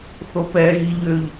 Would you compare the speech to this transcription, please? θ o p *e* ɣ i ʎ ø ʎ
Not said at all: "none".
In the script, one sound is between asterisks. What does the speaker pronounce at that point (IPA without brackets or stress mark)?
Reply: ɛ